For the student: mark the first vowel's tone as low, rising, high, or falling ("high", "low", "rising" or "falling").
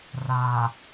low